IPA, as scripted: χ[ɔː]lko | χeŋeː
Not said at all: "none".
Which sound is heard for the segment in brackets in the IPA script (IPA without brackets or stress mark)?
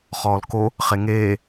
ɔː